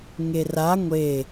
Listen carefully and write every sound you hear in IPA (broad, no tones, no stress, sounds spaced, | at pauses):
ŋ e r a ŋʷ e